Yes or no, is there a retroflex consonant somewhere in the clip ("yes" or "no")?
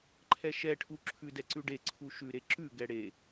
yes